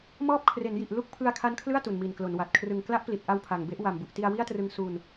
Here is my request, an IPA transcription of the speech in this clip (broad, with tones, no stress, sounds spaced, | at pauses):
m ɔː˥˩ p̚ kʰ r e˩˦ n j i˨˩ ʔ l u˥˩ k̚ pʰ ɯ˧ a̯ kʰ a˦˥ n kʰ l ɯ˥˩ a̯ t u˨˩ n m i˨˩ n k l o˩˦ n w a˨˩ t̚ kʰ r ɯ˨˩ ŋ k l a˦˥ ʔ p l i˨˩ t̚ ʔ a˧ w pʰ a˨˩ ŋ b e˦˥ ʔ w a˨˩ m b u˨˩ ʔ t i˧ a̯ w i˥˩ a̯ t r ɯ˧ ŋ s u˧ n